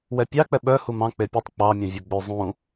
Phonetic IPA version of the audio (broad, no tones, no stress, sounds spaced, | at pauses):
w ɛ pʲ ɑ k͡p ɛ ɓ œ h u m ɑ̃ k͡p e pʲ u tˤ k͡p ɑ mʲ õ vʲ o ɡ͡b ø zˤ ũ